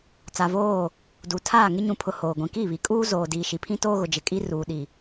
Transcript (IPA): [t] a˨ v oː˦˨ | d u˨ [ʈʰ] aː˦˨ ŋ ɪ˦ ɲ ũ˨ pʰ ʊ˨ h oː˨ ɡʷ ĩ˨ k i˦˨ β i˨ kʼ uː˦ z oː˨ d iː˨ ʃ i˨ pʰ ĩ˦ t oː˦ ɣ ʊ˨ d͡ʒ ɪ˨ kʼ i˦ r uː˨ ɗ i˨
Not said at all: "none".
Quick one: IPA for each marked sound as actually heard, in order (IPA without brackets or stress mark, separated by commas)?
t͡s, tʰ